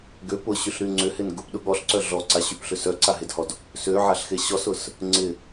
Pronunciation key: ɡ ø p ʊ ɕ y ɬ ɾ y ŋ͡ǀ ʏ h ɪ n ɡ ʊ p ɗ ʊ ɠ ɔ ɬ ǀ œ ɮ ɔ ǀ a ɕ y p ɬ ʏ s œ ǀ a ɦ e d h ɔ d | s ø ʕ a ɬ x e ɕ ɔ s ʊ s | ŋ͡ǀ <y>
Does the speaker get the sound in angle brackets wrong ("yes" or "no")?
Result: yes